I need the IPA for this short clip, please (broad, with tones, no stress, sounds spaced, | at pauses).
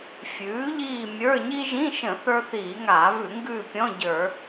fʲ ʉː˩˥ ʎ iː˦˨ mʲ ə˞˧˥˧ ɲ i˥ ʒ ĩ˧˥˧ ʃ ə̃˧˩˧ θ ə˞˥ θ iː˧˩˧ ŋ aː˧˩˧ v ʉ˧˩˧ ŋ ɡ ʉː˦˨ pʲ ɔ̃˧˥˧ ɟ ə˞˧˩˧